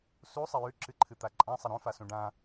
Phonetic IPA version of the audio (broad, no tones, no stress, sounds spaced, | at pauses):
s u sˤ ɐ j ʉ ǁ ɨ ǃʰ ɨ t̪ a ǃʼ ã sˤ ɐ ɾ õ f a s ũ ɖ ã